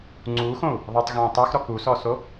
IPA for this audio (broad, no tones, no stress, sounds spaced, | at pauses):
ŋ͡ǀ uː x õ u̯ | ðˤ e tˤ ɣ õː tˤ a x ɾ ɔ k u s ɔ s o